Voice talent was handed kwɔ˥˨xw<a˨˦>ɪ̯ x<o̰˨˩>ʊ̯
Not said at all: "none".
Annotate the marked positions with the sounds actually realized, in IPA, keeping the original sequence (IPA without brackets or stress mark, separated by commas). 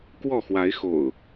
a˨˦, o̰˨˩